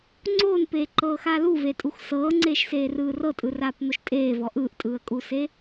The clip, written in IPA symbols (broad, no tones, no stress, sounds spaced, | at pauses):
ŋ͡ǀ oː n p eː ǃ ɤː x aː l u v e tʼ u x s ɤː ŋ͡ǀ eː ʃ s eː r ɯː r ɤ tʼ ɯ r aː p n̪ o ʃ tʼ eː v ɔ ʔ ɯː ʔ tʼ ɯː ə̯ kʼ uː s e